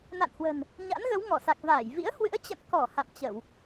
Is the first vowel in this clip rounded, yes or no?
no